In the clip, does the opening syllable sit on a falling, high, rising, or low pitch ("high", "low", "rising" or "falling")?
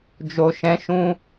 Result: low